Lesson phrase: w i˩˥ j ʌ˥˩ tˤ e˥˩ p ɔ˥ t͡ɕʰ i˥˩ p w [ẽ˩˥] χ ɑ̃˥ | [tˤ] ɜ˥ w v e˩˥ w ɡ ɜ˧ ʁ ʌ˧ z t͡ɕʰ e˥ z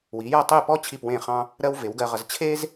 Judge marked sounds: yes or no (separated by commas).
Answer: no, no